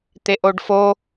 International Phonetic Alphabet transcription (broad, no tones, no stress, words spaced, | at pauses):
t̪eʔoɖfo